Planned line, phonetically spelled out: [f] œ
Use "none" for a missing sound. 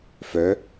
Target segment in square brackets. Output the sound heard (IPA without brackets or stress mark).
f